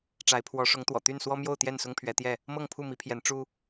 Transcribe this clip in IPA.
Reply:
ʈ͡ʂ a˨˦ ɪ̯ pʰ w ɔ˨˦ ʂ ʊ˨˦ ŋ t̪ w ɔ̰˨˩ t̪ y˥˨ n s w ɔ˦ m j o˥˨ ʊ̯ t̪ j ɛ˥˨ n s ʊ˦ ŋ pʰ ɥ ɛ˨˦ t̪ j ɛ˥˨ | m ɤ˥˨ ŋ pʰ u˥˨ m i˨˦ pʰ j ɛ˨˦ n ʈ͡ʂ u˦

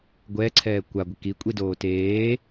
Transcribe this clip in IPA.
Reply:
ɡʷ ɛː ǀʰ ɛː kʷ a ɡʷ ɪ k i kʷʼ i d oː t eː

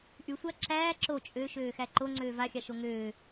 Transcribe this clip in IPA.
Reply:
ʔ y sʷ a ǁ æː ǁ o t͡ʃʼ ø ʃ øː x æ ǃ o ŋ͡ǀ øː v a xʲ a ʃ o ŋ øː

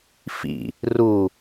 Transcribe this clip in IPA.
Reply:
f ḭ | r u

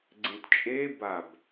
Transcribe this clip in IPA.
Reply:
ɡ͡ǀ ẽ t t͡ʃʼ e b a b

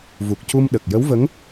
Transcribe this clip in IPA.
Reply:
v u˨˩ k̚ c u˧ m ɗ ə˨˩ k̚ j ə˧˥ w v ə˧˥ ŋ

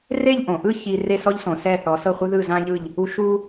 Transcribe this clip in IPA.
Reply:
r e˥˧ ʎ ʔ õ˩˧ ʔ ɯ˥˧ ç i˧ r e˥˧ s ɔ˥ ʎ s õ˩˧ s ɛ˧˩ θ ɔ˩˧ s ɤ˧˩ χʷ ɯ˧ ð ɯ˧˩ z ã˧ ʎ ɯ˧˩ ʎ | u˧ ʃ u˧

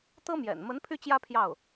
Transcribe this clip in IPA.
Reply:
t̪ ɤ˥ m j ɛ̰˨˩ n m ə˧˥ n pʰ y˥˩ t͡ɕ j ä˥ pʰ j ɑ˥˩ ʊ̯

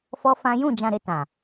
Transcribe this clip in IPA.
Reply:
f ɔ˦ f ã˦ j ũ˦˨ d͡ʒ ã˧ ɾ e˧ t ã˨

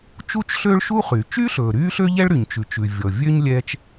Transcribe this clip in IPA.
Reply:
t͡ʃ u˥ t͡ʃ ɬ ø˥ ɭ ʃ u˥ χ y˩ t͡ʃ yː˥ ɬ ɵː˩ ɾ yː˥ ɬ ø˥ ʎ ɛ˥ ɭ ɾ y˩ ɲ t͡ʃ ʉ˩ t͡ʃ ʉ˩ vʲ ɔ˩ vʲ ø˥ ɲ lʲ ɛː˥ t͡ʃ

